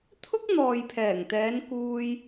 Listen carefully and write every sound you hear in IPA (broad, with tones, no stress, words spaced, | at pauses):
t̪ʰʊ˥k̚n̪ɔː˨jpʰɛː˨˩ŋt̪ɛː˨˧n kuː˧j